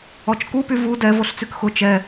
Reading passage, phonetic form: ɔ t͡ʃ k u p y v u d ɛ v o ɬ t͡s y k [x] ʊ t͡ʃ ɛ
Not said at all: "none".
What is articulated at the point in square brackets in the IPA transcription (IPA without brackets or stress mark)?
x